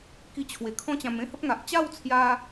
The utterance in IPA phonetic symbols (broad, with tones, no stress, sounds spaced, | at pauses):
k i˧ t͡ɕʰ w e˨˩ kʰ ɔ̃˦ t͡ɕ ã˧ m ẽ˦ h ə˦ p̚ ŋ a˨ ʔ t͡ɕ a˥˧ w t͡sʰ j a˧